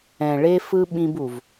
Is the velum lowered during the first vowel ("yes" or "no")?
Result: yes